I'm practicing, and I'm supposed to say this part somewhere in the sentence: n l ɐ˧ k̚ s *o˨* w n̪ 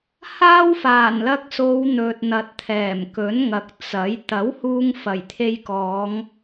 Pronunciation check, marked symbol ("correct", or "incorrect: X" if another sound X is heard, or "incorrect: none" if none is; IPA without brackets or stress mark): incorrect: o˨˧